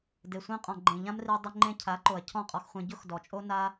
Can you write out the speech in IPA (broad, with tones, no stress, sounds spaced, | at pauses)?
d e˨ sʷ ɛ̃˧ qʼ ɔ̃˨ ɡ͡ǃ ẽ˨ ʎ ã˦ m r i˧ dˤ ɪ˧ ŋ͡ǃ ẽ˧ cʰ a˨˦ ǃ o˨ ɐ̯ cʰ ɔ̃˦˨ qʼ ɔ˧ x χʷ ẽ˧ ɟ ʊ˦ x d ɔ˨ t͡ʃʼ o˦ n a˦